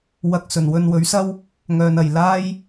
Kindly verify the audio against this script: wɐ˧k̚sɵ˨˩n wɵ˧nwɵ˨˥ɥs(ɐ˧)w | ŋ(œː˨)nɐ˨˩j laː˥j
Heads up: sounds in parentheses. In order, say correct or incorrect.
incorrect: ɐ˥, correct

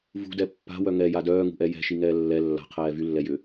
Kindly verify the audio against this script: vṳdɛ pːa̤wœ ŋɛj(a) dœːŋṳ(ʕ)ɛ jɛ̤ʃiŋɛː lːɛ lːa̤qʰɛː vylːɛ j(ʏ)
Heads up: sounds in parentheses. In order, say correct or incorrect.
correct, incorrect: ʔ, correct

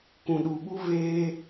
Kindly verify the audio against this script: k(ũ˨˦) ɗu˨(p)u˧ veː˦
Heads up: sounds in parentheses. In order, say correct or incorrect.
incorrect: ũ˨, incorrect: ɓ

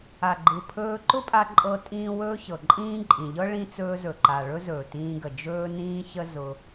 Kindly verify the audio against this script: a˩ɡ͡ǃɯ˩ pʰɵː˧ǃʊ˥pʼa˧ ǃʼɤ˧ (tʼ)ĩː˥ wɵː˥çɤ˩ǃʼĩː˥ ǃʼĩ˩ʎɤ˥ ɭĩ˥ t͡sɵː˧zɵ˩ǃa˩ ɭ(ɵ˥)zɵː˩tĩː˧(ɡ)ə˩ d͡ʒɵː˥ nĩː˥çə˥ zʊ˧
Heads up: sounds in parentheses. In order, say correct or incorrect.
correct, correct, correct

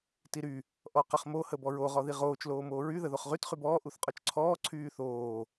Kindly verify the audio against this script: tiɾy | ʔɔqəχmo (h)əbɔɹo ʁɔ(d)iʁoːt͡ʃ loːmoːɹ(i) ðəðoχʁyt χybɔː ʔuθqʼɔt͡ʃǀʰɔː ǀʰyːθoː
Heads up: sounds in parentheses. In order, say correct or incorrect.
correct, incorrect: ð, incorrect: y

